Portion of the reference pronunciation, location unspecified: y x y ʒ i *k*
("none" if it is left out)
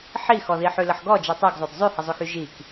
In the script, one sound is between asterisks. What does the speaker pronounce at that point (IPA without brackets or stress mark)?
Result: k